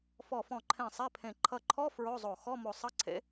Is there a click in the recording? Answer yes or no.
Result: yes